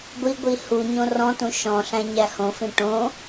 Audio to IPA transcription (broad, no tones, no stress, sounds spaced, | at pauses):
ɡʷ i ɡʷ i h u ɲ õ r ɔ̃ t ũ ʃ ɔ̃ ɬ æ̃ ɲ æ h õ f ĩ ʈ õ